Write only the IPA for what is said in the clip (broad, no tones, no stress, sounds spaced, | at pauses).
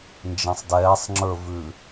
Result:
n d͡ʒ ɛ̃ sˤ d ɛː sˤ ŋ͡ǁ ə˞ v ʉ